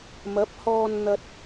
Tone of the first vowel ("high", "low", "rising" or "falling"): rising